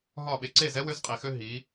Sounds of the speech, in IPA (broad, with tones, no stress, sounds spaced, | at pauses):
ɦ ɒ˦˨ ɓ e˨ ǀ e˦˨ z ɛ˦ w ø˦ z qʼ i˨ x ø˦ ɦ i˨˦